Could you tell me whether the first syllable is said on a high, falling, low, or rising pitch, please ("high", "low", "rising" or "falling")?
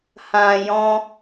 low